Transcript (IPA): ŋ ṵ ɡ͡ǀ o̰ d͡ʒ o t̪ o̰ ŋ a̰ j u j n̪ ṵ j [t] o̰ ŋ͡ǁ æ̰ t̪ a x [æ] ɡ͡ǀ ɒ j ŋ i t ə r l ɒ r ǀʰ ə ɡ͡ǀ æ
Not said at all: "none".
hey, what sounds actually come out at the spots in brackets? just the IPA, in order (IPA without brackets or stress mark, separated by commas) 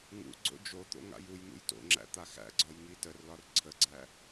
t, æ̰